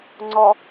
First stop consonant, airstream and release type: click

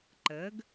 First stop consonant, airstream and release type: click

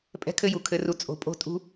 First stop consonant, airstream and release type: ejective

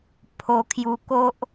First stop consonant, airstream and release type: aspirated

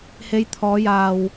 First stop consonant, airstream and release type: aspirated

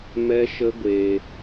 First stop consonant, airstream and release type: plain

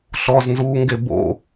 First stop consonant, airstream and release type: plain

